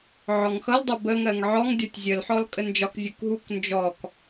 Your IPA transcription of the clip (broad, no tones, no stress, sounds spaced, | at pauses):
ʕ ɔ ŋ x ʌ l dˤ ʌ b ə ŋ ɜ ŋ ʕ ɔ ŋ dʲ ɒ tʲ zʲ ə l ħ ɔ l kʼ ə n d͡ʒ ɒ k zʲ u k ɦ u k n d͡ʒ ɔ k